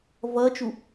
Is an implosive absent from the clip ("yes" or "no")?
yes